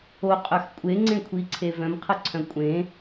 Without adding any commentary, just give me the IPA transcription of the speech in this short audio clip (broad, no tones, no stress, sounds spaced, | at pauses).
o qʼ œ x kʷʼ e ŋ͡ǀ ẽ kʷʰ i ǀʰ e v œ̃ m qʰ ə ǀʰ œ̃ kʷʼ ẽ